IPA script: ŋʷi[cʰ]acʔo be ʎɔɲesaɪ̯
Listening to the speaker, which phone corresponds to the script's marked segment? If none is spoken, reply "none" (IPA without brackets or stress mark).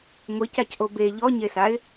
c